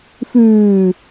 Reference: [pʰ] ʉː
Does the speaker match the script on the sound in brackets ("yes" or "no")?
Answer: no